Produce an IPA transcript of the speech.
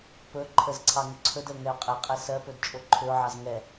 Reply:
p ɵ ǃʰ ə z ǀʰ ɑ ŋ ʏ ǀʰ ɵ d ə ʊ̯ ŋ ɛ ʊ̯ qʼ ɛ qʼ ɛ s ɜ p ɵ d t͡ʃʼ o ǃʰ ʏ ʊ̯ ʕ ɑ z ŋ ɛ

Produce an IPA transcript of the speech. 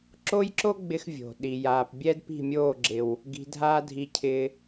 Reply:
ǁ o˦ j ǁ o˦ ɡ͡b ɪ˦ x vʲ o̤˨ ɗ i˨ j aː˨ p bʲ ɛ˦ d p i̤˦˨ mʲ oː˦˨ ɡ͡ǁ ɪ˨ w | ɡ i̤˧ dʱ aː˦ dʱ i˧ cʰ ɪː˧

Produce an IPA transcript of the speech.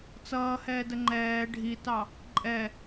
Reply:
t͡s ʌː h ɛː d ə ŋ͡ǃ ɛː ɖʱ i t ɑ | ǃʼ ɛ

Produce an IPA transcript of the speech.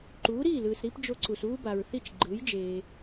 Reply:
ǃ uː˩˥ ɾ iː˥˩ l ɯː˩ s ɾ i˥ p d͡ʒ o˧ ǀ u˩ s uː˥ b a˩ ɹ θ i˥˩ t͡ʃ ɡ͡ǃ ɯː˩˥ j d͡ʒ eː˩

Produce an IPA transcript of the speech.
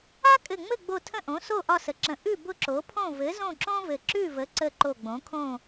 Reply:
a˥ kʼ ɘ˧˩ ŋ͡m ɘ˥˨ ɡ͡b o˧˩ tʰ ə̃˥˨ ʔ õ˩˥ s o˥˨ ʔ ɒ˥˨ s ə˩˥ ǁ ə̃˧˩ ʔ ʉ˥˨ b ʊ˥˨ ǁ o˩˥ pʰ õ˥˨ v ɘ˩˥ z õ˥˨ ǁ õ˥ v ɘ˧˩ ǁ ʉ˥˨ v ə˩˥ ǀ ə˧˩ ǃ o˧˩ ɡ͡b õ˩˥ kʰ õ˥˨

